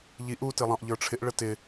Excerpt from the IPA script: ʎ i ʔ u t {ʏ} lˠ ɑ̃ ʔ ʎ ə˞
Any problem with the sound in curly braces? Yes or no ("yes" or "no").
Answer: yes